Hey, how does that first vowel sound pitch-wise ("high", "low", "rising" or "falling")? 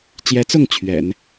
rising